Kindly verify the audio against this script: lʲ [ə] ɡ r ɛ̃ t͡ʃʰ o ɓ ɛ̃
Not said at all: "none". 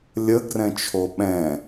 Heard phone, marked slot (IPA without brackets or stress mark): ə